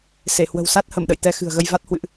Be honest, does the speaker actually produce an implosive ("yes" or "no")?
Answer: yes